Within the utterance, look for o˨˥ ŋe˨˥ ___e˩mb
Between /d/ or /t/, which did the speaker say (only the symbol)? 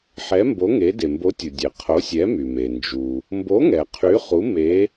d